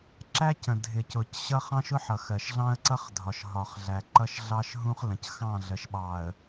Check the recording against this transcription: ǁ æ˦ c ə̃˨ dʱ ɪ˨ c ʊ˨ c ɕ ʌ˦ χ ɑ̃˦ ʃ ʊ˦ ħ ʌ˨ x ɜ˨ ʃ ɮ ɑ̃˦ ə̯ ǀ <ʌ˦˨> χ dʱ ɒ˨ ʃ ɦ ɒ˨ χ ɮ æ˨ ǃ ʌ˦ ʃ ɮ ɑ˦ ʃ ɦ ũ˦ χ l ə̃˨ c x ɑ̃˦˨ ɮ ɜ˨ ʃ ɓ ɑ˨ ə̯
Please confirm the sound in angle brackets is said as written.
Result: no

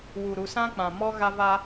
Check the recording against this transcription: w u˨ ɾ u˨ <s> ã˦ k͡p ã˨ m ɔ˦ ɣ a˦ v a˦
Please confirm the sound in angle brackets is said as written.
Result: yes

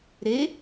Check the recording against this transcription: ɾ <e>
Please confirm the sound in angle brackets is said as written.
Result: yes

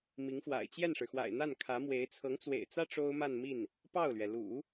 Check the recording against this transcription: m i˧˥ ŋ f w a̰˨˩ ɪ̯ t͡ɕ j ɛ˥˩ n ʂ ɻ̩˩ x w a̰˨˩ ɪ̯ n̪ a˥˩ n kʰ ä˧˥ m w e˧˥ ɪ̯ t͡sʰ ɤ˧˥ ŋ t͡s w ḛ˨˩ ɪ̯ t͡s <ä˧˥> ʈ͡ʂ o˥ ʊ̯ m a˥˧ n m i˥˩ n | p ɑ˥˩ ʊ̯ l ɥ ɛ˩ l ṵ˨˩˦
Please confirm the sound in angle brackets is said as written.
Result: no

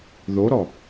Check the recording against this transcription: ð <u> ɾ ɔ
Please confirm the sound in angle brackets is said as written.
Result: no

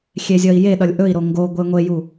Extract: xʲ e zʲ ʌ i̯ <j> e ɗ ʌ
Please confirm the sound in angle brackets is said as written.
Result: yes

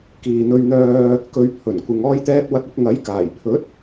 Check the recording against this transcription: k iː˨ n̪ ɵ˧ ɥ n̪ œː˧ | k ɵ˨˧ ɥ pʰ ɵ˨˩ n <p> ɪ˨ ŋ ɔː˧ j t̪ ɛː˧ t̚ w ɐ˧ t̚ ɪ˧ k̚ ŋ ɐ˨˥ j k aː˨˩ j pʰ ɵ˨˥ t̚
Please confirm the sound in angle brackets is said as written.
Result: no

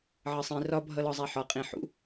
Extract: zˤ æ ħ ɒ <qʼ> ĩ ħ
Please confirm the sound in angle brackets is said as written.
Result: yes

